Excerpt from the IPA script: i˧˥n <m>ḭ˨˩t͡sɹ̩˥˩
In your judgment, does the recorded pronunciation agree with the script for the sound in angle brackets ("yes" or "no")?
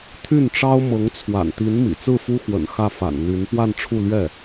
yes